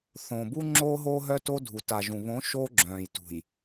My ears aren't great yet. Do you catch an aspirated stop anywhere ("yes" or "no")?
no